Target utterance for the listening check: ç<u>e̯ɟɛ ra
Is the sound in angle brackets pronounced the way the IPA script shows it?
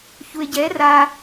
yes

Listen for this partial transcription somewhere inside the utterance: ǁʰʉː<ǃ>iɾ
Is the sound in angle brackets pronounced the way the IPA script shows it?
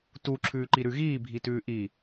yes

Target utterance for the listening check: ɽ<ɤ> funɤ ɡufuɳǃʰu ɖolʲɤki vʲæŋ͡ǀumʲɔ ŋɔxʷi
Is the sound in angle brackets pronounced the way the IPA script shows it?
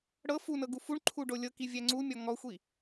yes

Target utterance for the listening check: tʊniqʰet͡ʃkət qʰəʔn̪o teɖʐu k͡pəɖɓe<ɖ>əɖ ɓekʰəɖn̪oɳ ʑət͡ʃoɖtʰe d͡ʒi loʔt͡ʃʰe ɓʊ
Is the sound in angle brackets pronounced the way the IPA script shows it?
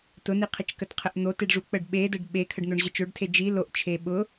no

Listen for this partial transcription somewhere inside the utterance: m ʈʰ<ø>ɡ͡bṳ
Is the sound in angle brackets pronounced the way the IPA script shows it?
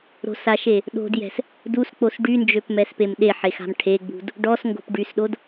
no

